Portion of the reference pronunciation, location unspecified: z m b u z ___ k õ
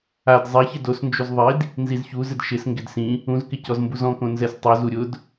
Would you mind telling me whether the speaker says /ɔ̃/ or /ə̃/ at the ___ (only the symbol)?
ɔ̃